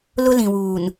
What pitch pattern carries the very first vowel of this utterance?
high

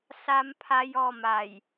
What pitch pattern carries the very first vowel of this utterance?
high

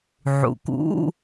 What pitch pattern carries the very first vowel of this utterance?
low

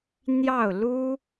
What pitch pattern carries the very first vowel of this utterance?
falling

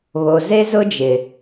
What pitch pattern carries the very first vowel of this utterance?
low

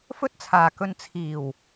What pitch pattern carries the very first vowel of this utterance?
high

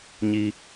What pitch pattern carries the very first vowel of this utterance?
high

